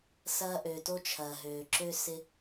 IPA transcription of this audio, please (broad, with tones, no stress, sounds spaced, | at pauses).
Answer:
s ɐː˧ ʔ ø˩ t o˧ t͡ʃʰ ɐː˩ ɦ øː˩ ǁ ø˧ s ɪ˧